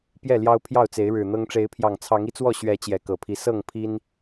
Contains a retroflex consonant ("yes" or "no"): yes